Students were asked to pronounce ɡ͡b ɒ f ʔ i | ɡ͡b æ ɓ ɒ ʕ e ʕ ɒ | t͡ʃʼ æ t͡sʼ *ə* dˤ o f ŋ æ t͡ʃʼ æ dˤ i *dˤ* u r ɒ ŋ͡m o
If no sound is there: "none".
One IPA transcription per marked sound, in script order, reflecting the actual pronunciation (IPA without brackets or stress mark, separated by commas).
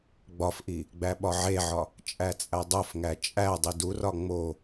æ, d